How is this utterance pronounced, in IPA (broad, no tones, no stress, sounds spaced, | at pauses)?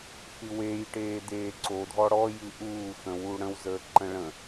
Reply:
x ɨ w e j ʈ eː d eː ǀ o dʱ ɔ ɽ ɔ j ɨ ʔ uː x ə̃ w u ɽ ə̃ w z əː ǃ ə̃ ɭ ə̃